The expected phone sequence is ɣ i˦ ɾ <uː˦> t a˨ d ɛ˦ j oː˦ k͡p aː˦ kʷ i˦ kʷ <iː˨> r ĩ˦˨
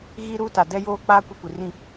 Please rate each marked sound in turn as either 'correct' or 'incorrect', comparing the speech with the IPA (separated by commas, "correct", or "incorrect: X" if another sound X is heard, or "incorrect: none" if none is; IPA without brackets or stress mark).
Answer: correct, incorrect: i˨